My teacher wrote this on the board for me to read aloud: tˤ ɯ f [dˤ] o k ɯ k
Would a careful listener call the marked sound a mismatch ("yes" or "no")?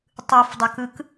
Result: no